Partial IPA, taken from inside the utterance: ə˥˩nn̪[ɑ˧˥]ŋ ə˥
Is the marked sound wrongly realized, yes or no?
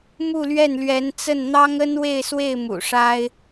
yes